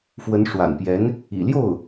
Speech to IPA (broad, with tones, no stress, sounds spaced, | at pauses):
f w ə˧˥ n ʂ w a̰˨˩ n p j ɛ˧˥ n | ḭ˨˩ l j o˥˩ ʊ̯